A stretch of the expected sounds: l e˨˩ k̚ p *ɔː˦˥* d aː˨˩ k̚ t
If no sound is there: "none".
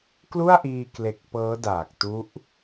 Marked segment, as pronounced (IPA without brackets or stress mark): ɤː˦˥